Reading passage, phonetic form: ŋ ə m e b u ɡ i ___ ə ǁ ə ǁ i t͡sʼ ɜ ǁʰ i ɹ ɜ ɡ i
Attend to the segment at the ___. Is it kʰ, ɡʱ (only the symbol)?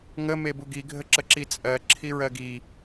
ɡʱ